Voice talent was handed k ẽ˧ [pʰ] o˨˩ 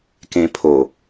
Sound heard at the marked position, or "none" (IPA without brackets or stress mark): pʰ